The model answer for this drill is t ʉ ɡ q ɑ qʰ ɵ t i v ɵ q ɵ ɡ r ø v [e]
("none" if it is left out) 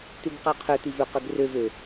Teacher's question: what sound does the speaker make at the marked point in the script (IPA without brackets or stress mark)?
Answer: ø